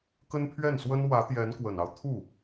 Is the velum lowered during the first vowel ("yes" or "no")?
no